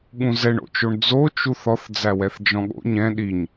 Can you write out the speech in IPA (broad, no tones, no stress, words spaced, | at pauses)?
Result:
ɠũzɛɳo̰t͡ʃoɳ d͡zot͡ʃuθ ɔθd͡zæwɛθ d͡ʒɔ̃ɠo̰ ɲɛ̃ ɗiɲ